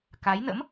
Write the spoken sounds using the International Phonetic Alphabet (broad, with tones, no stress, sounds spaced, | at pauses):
k a˨˦ j n ə̰˧˥ m